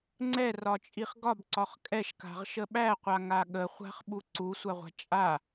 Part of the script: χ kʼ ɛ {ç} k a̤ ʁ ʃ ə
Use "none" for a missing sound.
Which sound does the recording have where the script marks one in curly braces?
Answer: ʃ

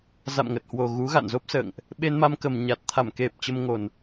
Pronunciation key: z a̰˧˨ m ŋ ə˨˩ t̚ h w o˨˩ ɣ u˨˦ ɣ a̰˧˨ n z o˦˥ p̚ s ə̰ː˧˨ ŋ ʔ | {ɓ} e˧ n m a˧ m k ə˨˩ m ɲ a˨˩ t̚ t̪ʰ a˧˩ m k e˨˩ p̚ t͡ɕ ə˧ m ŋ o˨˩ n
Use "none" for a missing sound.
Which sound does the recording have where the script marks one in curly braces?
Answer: ɓ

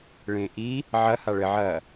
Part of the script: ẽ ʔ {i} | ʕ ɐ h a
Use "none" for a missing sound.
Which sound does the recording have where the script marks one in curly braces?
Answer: i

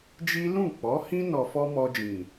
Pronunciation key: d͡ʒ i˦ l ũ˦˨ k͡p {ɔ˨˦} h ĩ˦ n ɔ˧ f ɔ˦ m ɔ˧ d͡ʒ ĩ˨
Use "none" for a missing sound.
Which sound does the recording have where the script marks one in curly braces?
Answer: ɔ˨˦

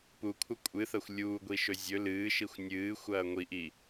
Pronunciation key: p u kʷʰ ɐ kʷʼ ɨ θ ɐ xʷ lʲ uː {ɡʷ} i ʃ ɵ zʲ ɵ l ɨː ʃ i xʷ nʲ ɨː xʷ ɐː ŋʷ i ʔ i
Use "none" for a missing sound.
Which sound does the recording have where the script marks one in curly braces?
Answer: ɡʷ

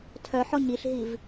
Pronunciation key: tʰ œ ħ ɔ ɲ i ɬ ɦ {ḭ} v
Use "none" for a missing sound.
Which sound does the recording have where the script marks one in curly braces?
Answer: i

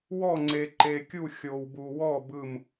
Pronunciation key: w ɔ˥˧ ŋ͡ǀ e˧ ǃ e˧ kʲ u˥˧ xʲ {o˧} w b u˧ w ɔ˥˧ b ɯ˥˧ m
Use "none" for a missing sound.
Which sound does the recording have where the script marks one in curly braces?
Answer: o˧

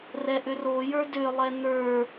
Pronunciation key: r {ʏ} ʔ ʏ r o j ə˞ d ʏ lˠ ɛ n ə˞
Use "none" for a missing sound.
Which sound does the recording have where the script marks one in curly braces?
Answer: ɛ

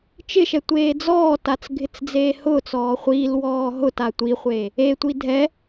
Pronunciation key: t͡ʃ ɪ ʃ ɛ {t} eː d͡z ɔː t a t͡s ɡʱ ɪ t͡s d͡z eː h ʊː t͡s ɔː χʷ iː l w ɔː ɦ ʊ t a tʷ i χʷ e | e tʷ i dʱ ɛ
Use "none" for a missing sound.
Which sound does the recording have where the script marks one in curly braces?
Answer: tʷ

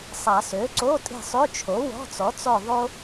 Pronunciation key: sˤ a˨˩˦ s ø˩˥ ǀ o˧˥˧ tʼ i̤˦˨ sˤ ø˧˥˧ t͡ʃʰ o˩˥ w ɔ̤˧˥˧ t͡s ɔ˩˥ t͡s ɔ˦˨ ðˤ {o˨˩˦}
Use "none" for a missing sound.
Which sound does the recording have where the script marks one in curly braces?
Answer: o˥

